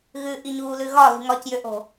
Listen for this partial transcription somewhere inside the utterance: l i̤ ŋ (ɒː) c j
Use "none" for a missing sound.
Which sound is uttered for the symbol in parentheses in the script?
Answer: ɒ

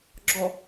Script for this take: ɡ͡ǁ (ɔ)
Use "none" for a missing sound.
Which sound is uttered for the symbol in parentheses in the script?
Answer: ɔ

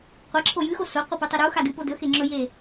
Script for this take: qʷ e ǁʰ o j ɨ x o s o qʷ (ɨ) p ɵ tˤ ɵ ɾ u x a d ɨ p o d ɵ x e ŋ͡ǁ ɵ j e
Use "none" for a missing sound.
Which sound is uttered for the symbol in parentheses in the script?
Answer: ɨ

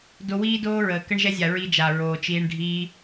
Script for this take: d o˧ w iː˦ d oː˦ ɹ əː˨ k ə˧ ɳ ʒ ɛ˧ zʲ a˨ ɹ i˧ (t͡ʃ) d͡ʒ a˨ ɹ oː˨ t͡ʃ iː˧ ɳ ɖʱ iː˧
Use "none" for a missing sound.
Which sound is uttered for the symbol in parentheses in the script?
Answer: none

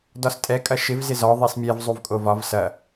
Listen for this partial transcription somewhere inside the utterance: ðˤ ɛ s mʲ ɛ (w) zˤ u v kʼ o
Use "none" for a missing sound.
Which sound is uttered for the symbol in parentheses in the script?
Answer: v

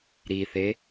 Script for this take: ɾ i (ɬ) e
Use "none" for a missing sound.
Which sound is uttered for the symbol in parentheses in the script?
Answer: θ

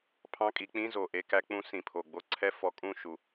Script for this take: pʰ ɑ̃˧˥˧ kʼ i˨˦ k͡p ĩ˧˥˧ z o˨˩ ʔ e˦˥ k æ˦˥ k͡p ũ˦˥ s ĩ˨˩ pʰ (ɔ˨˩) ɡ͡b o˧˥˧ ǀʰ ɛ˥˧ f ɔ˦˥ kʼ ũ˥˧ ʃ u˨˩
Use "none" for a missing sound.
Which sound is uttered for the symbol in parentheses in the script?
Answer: o˨˩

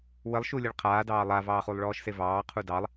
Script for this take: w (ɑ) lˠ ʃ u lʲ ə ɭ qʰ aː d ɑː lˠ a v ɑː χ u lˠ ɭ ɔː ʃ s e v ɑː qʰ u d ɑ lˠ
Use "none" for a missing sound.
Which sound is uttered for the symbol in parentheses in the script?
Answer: ə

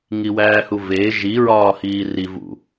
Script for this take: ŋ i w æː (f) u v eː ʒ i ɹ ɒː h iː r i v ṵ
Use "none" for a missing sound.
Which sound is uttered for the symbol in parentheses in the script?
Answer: h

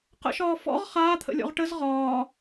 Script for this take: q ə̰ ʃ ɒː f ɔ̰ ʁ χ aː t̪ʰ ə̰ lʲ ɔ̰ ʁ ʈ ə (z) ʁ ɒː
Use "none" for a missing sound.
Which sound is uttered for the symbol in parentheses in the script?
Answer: z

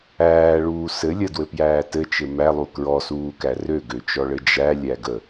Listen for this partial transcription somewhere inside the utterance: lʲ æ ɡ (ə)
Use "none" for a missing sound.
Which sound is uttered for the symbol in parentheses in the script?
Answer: ə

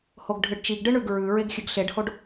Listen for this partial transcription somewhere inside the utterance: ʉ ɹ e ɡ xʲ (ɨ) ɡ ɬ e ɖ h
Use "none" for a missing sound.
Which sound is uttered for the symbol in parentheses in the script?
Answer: ɨ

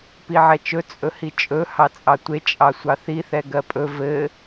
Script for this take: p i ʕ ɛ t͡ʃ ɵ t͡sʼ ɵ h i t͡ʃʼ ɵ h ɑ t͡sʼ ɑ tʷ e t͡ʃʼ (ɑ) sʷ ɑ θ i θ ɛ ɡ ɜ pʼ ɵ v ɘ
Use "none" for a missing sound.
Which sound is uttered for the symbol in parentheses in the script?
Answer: ɑ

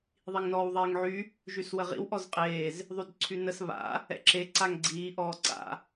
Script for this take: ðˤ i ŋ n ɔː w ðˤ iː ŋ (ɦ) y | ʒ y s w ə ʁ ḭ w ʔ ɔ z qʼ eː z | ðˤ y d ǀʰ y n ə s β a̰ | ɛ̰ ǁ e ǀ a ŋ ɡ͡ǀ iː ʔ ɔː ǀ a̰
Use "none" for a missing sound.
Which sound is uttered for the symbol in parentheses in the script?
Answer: ʕ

